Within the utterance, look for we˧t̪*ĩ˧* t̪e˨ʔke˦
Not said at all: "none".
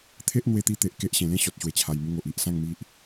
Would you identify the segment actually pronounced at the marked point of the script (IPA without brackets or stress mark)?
i˧